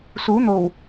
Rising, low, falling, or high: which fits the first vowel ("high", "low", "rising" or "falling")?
rising